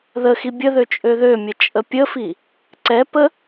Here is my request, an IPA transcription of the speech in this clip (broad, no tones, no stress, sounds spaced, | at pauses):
ð ə x i bʲ ə ð ø t͡ʃʼ ø ð ø mʲ ə t͡ʃʼ ə pʲ ə f i | ǀ ɛ p ə